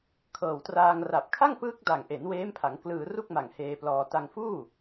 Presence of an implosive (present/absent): absent